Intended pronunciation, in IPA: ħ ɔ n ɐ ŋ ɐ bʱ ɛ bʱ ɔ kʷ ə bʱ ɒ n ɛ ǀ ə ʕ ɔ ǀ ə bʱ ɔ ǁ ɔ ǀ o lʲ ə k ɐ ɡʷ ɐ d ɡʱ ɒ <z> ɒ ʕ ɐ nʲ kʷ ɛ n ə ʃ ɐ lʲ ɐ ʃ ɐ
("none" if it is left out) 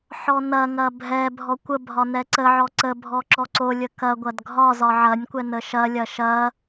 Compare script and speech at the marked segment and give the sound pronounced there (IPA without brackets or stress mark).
z